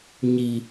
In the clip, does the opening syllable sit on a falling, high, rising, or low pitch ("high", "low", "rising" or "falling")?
low